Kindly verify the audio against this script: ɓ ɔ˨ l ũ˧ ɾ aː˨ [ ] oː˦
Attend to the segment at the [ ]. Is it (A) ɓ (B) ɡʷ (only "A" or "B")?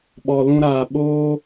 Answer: A